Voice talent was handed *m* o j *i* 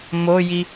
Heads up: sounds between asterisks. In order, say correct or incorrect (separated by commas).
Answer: correct, correct